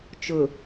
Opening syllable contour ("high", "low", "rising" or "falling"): low